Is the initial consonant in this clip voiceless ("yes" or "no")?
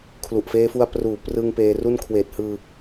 yes